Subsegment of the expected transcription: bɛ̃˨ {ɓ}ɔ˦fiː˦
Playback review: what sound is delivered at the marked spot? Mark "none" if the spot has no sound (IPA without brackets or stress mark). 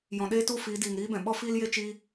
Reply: ɓ